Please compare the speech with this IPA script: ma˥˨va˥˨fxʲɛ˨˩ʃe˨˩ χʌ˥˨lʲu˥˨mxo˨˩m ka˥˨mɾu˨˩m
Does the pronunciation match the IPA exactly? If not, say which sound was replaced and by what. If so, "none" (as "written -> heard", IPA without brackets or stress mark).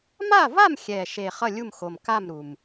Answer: f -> m